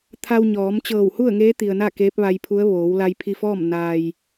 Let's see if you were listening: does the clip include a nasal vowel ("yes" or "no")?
no